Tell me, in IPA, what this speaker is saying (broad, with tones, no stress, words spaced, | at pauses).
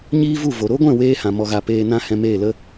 ɲiː˦vu˦˨ vo˨ ɾo˦ɡʷɛ̃˦˨ weː˦hã˨ mɔ˧ɣa˧ peː˧nã˦ hɛ̃˧meː˦˨lə˦